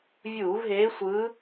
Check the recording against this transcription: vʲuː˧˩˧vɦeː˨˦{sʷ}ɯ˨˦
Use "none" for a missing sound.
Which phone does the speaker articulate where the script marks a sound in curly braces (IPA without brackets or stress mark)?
sʷ